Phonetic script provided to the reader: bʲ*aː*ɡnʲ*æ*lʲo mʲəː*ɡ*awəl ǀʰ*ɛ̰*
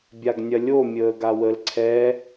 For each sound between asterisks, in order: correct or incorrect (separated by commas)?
incorrect, incorrect, correct, incorrect